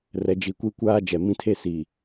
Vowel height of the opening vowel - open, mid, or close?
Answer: mid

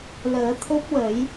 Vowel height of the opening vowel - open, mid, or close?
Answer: mid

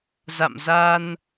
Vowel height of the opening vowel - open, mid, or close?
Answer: open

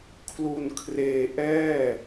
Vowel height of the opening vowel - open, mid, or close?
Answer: close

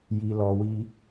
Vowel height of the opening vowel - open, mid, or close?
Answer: close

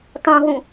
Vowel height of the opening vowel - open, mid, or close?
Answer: mid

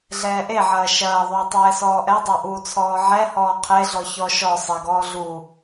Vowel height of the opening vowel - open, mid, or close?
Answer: mid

